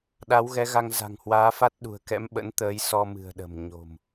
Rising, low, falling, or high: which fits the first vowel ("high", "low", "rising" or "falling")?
rising